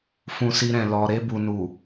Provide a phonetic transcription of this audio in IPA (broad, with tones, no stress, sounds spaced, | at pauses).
f ũ˧ s i˧ ɾ ɛ̃˨ l ɔ˨ ɾ e˧ b u˨ n u˨